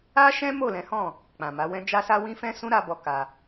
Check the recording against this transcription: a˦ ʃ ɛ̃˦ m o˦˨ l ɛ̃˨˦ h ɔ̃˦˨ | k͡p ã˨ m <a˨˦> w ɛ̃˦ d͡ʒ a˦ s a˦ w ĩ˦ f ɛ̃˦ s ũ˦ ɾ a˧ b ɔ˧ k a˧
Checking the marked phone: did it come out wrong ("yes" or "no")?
no